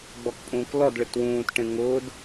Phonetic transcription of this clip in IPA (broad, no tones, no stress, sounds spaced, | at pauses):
ɡ͡b ɔ k pʼ ũː k l ɔ d ɭ ɪ t w ũː t ʈ ẽ ŋ ʊ d